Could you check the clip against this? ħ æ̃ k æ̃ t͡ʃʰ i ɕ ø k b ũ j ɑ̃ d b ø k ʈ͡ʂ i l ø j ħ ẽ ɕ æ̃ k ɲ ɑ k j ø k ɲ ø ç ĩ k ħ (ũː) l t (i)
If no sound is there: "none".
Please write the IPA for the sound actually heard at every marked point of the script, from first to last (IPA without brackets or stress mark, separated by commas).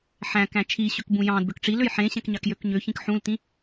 ũ, ĩ